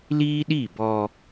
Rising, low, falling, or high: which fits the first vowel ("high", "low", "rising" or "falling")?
high